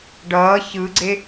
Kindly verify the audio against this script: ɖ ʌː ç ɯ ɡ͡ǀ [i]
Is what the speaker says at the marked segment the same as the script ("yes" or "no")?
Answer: no